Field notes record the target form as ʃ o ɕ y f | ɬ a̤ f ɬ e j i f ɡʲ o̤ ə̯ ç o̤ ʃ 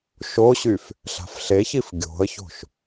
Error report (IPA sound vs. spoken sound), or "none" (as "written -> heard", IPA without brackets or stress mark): j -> ç